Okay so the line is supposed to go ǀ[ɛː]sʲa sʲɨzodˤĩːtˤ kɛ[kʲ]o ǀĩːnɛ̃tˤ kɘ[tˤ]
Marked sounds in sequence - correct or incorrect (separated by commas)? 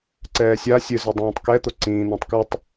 correct, incorrect, correct